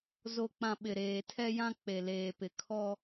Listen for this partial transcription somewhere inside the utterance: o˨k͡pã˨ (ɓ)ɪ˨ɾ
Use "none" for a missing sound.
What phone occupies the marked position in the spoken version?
ɓ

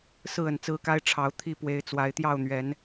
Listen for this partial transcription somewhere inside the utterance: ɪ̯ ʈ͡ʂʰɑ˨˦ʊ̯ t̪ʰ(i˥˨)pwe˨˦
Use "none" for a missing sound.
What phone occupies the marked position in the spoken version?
i˦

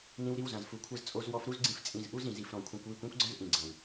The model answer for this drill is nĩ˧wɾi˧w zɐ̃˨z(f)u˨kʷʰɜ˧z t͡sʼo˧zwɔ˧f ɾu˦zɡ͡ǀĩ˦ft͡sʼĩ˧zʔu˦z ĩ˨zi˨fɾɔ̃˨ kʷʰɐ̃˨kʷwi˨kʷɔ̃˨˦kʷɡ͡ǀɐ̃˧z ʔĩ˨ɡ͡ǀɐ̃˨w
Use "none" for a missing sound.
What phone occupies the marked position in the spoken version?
f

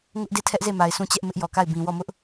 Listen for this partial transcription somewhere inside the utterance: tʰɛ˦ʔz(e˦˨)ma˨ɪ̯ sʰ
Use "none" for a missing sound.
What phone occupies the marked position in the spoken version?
e˦˨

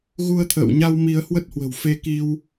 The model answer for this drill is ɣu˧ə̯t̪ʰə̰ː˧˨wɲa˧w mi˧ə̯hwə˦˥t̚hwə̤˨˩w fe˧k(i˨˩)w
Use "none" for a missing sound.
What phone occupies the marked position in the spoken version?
i˧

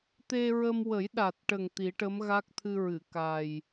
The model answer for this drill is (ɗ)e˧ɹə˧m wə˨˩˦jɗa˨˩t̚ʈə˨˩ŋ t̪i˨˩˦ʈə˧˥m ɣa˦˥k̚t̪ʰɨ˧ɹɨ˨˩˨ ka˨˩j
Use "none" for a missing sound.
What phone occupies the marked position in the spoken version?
t̪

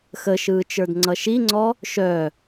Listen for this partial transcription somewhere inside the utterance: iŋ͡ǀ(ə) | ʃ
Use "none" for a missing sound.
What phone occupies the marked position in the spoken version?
ɔ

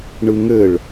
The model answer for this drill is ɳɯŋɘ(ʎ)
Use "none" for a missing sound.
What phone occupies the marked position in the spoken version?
ɭ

